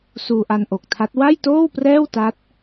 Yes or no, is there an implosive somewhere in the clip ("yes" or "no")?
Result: no